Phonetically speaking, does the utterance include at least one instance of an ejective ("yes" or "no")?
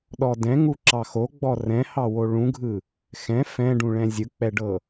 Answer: no